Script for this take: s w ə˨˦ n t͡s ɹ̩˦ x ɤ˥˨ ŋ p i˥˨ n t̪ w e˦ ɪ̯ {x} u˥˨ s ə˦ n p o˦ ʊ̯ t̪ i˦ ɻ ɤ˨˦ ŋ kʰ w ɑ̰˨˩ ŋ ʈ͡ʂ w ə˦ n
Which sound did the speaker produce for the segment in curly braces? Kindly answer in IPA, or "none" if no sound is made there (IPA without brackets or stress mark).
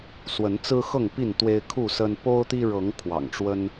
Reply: kʰ